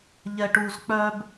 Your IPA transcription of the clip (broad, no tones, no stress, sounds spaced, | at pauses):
ʎ ɛ ʈ u z k͡p œ b